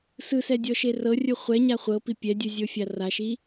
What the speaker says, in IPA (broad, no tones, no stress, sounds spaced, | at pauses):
s ɯ s ɛ dʲ ɔ ʃ e r ɤ rʲ u χʷ ɛ ɲ a χʷ ɤ p i pʲ ɛ dʲ ɯ zʲ o fʲ a r a ʃ i